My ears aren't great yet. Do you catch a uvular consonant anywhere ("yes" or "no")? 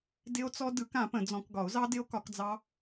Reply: no